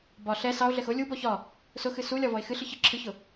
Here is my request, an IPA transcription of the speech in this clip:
b ɒ ɬ ɛ s ɑ o̯ ɮ ɛ x ʊ lʲ u b ɔ ç ɒ | s ʊ x ɨ s u lʲ ɒ v ɔ e̯ x ɨ ɬ ɨ ç ɨ ǁʰ ɨ ç ʊ

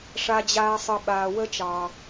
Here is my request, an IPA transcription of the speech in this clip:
ʂ a˧ d͡ʑ aː˧ sˤ ɨ˨ ɓ aː˨ w ə˦ t͡ʃ ɑ˨

